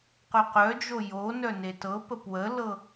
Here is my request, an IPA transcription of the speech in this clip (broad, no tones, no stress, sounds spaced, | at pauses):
q œ q œ d͡ʒ o j o n œ n e t ɤ p ə p w ə l ɤ